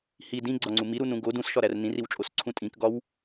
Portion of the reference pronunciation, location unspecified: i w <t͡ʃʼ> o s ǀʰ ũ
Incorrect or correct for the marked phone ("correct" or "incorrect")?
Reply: correct